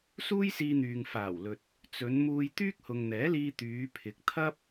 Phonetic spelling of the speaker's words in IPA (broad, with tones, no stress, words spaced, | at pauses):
suː˥jsiː˧n̪yː˨ŋ faː˨˩wlɵ˨t̚ | t͡sɵ˨˧n muː˧jt̪yː˥k̚hʊ˨ŋn̪ɛː˨˥ liː˧t̪yː˨˧pʰɪ˨˥k̚t̪ʰɐ˥p̚